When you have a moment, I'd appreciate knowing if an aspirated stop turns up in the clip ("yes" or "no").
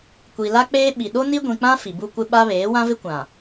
no